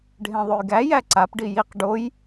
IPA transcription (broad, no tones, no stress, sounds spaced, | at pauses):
ɖʱ ẽ ðˤ ʉ j ɡ æ j æ ǀ a p ɖ i j i q ɖ o j